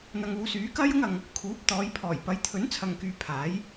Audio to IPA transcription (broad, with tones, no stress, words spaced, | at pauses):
n̪ɐ˧ŋuː˨˧syː˨˥ kɐ˥j ʊ˥ŋɐ˧ŋ | kʰuː˨˥p̚t̪ɔː˨˧jpʰɔː˨˩j pɐ˨˥jt̪ʰɵ˨˥nt͡sʰɐ˨ŋkyː˨ pʰaː˨˥j